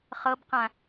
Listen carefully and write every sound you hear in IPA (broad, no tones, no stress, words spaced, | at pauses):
χɤbqã